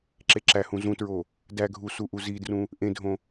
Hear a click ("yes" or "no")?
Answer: yes